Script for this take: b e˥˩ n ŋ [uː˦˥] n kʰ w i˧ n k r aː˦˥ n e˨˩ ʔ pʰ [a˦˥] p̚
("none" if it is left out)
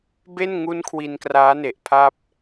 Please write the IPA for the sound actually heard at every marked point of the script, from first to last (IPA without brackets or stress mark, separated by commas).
u˦˥, a˥˩